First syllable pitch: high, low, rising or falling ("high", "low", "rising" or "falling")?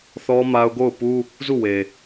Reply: high